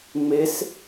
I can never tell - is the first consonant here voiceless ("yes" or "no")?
no